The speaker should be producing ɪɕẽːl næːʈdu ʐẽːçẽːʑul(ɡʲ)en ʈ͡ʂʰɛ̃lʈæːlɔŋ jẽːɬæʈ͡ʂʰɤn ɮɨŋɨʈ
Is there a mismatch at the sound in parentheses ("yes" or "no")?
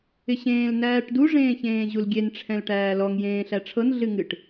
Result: no